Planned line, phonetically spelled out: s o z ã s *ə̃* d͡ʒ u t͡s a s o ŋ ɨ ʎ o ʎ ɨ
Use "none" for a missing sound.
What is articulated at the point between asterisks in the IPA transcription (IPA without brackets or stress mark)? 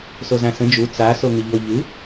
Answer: ə̃